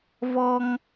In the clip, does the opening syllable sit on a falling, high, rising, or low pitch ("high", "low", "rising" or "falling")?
high